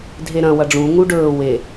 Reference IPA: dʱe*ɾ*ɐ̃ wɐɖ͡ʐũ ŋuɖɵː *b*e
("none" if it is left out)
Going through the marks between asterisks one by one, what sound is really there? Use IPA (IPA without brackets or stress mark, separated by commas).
ɾ, w